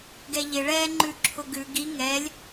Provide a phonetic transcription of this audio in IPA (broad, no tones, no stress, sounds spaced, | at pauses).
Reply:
ɡ ɛ ʎ ɪ ɭ ɛ ŋ͡ǃ ʉ ǁʰ ʊ ɡ ʉ ɡ i ŋ ɛ lʲ